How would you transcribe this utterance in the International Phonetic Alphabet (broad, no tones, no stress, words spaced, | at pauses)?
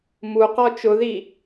muqɔ t͡ʃʊði